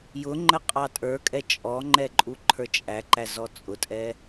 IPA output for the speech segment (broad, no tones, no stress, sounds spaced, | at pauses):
j ʊ ŋ͡ǃ ə qʼ ɑ tʼ ə˞ kʼ ɛ t͡ʃʼ ɔ ŋ͡ǃ ɛ ǃʼ u ǃʰ ə˞ t͡ʃʼ æ ǃ æ z ɔ t͡sʼ ʊ tʼ ɛ